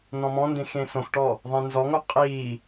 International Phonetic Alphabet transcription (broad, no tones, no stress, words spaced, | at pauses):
nɔ̃mɔ̃ndẽx ẽsõxʈɔ | ðˤẽnzɔŋo qʼiː